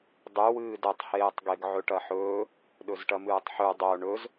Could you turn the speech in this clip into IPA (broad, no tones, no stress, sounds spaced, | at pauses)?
dˤ ʉ w ɨː d ɐ tˤ h eː tˤ ɡ e ɡ ʕ ɵ ʈ ɐ ħ ɵː | ɗ ɵ z ʈ ɐ m ɨː tˤ ħ ʉ dˤ o ɳ ɵ z